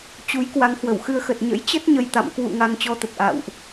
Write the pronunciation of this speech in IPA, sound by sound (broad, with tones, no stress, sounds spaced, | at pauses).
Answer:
t͡ɕ u˨˦ j k w a˨˦ ŋ h w ə˧˩ w x ɨ˧ ə̯ x ə˨˩ t̚ ɲ ə̰˧˥ j t͡ɕ ə˦˥ t̚ ɲ ə˨˩ j t̪ a̰˧˨ m k w ṵ˧˨ ŋ a˧ ŋ t͡ɕ ɔ˧ t̪ ə˨˩ t̚ ʔ a̰ː˧˨ w ʔ